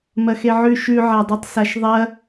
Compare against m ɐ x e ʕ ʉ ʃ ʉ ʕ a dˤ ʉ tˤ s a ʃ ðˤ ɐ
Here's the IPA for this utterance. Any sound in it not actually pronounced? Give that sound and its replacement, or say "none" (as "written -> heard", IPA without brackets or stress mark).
none